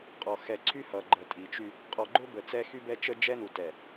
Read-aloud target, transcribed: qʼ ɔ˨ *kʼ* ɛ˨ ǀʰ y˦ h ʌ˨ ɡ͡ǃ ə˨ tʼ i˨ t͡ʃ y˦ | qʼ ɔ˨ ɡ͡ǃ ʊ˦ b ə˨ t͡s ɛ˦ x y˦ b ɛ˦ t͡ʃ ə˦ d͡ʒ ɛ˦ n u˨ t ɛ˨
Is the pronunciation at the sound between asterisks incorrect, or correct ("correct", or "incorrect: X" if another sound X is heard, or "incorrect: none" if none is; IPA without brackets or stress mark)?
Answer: incorrect: x